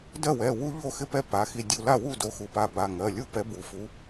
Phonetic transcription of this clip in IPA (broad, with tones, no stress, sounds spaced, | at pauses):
d ɜ˥˩ w ɛ˩˧˩ w u˦ ʎ o˥˩ x ɪ˦ p ɛ˦ p a˩˧˩ x i˧˩ dʲ u˧˩ l a˥˩ w u˥˩ d o˨˥ x u˩˧˩ p a˧˩ b a˩˧˩ ŋ ɜ˩˧˩ lʲ u˥˩ p ɛ˨˥ b u˩˧˩ f u˨˥